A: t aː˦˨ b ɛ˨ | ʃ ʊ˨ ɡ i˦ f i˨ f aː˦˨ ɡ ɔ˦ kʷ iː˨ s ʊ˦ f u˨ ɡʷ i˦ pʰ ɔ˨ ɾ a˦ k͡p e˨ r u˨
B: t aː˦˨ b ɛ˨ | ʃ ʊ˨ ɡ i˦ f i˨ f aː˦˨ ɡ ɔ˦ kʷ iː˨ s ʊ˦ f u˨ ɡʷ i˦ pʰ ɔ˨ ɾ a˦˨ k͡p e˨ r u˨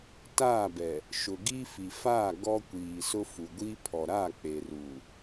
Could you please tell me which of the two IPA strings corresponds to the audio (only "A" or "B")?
B